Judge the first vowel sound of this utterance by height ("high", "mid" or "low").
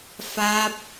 low